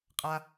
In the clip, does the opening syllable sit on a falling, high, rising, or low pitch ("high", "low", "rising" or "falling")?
high